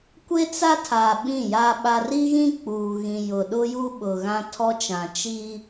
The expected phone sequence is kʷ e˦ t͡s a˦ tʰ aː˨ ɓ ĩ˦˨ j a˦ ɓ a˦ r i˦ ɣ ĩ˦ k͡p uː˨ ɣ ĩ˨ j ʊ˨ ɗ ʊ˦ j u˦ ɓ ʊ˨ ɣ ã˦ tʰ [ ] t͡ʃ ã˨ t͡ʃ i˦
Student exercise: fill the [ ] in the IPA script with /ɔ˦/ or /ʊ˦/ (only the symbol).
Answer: ɔ˦